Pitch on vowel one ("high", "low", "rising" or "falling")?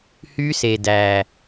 high